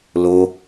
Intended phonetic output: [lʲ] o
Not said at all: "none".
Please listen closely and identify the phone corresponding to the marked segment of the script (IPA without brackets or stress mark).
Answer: l